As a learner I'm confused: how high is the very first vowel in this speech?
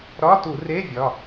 low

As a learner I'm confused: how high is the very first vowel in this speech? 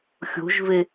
mid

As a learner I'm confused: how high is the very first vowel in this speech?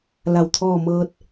low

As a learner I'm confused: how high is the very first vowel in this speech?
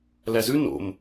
low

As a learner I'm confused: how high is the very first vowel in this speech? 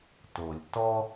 mid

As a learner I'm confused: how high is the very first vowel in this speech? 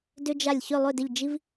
high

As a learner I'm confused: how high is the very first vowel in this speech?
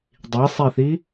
high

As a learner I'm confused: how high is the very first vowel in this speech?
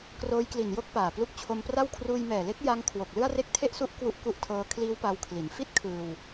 mid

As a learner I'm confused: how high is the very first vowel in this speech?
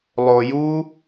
mid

